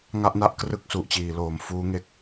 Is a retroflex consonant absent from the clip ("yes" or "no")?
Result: yes